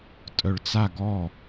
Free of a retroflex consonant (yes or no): no